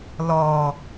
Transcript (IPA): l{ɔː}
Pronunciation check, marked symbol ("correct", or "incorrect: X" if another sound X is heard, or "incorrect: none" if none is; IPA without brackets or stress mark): correct